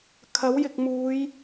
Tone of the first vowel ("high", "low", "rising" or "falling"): rising